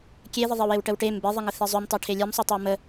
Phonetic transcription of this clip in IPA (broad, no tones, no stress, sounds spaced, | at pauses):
kʲ e ð ə ðˤ e w e w ʈ ə w ʈ e m b e ðˤ ə ŋ ə θ ɛ zˤ ʉ m tˤ ɛ ʈʰ e lʲ ɛ m sˤ ʉ tˤ ʉ w m ə